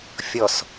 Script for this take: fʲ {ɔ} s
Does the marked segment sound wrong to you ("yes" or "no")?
no